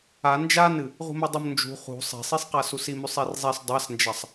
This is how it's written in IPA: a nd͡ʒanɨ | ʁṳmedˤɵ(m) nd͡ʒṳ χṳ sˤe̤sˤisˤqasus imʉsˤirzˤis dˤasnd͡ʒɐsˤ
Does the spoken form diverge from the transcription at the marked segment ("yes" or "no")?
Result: no